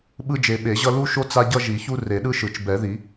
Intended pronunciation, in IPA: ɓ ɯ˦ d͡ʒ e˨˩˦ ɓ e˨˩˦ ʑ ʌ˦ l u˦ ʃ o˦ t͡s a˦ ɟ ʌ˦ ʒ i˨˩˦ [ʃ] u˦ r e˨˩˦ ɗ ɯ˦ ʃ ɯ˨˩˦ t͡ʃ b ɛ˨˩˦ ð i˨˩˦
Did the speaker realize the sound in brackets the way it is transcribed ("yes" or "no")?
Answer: no